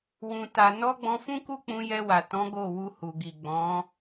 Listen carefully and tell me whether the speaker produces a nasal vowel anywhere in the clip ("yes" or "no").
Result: yes